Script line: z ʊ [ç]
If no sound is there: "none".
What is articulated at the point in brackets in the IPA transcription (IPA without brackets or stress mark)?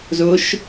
ʃ